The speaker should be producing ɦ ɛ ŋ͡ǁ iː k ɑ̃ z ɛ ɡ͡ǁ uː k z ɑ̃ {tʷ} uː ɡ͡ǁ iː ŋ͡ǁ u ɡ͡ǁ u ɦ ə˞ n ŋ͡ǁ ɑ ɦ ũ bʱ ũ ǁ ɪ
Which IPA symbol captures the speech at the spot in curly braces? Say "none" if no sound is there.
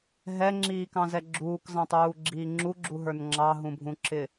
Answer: tˤ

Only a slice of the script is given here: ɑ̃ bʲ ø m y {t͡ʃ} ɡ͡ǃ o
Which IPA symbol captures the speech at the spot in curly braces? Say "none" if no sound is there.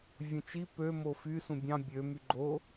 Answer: none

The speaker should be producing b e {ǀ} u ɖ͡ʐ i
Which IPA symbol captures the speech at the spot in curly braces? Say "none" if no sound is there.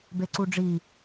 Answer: ǀ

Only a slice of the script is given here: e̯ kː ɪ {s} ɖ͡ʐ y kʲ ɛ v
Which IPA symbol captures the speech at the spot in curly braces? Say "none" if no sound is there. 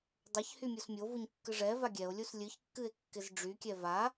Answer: z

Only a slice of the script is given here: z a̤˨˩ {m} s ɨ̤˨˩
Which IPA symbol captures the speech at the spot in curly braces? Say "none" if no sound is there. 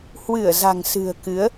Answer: ŋ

